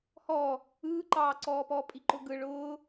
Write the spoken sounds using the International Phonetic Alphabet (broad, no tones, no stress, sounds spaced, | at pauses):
h ɔː | ɯː ǃ ɑː ǀ ɔː p ɔː pʼ i ǃ ʊ ɡ ɯ ɭ ʊː